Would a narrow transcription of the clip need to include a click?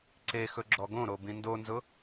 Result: yes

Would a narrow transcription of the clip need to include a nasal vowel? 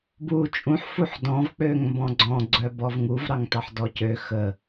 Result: yes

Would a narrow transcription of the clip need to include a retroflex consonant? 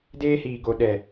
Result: no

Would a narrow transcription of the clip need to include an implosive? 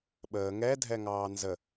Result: yes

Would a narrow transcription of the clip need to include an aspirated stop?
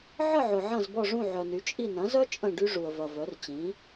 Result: no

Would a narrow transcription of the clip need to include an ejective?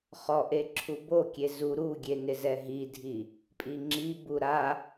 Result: yes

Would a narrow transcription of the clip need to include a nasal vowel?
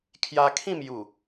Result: yes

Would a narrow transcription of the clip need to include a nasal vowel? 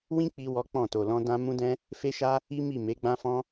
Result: yes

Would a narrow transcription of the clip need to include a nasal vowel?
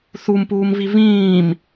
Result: yes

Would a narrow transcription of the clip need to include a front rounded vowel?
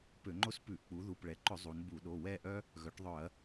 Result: yes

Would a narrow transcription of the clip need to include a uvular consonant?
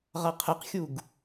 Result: yes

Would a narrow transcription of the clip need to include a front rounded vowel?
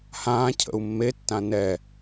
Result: no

